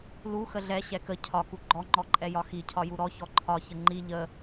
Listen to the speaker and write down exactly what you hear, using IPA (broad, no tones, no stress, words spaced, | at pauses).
lu xəɮɛ ɕɛkə cʰɒ kuɡ͡ǃɔŋ͡ǃɔǃʼɛ jɒxi cʰɒjuɾɔ çɔǃʰɒçə ŋ͡ǃi ʎə